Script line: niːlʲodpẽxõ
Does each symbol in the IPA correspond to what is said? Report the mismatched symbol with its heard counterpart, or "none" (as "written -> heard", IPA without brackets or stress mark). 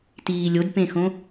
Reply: n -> t